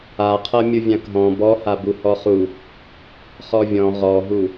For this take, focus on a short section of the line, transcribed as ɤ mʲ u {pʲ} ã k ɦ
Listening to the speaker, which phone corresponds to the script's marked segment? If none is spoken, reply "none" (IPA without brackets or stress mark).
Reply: vʲ